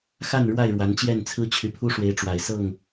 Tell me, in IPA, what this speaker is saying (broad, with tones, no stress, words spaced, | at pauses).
xa˥˨nɻwa˥˨ɪ̯ ɻwa˨˦nt͡ɕjɛ˥˨nt͡sʰɹ̩˦ t͡ɕʰy˨˦pʰu˦ ʂwe˨˦ɪ̯ʈ͡ʂwa˨˩ɪ̯ sɤ˥˨ŋ